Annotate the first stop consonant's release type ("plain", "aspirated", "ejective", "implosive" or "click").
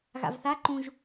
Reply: click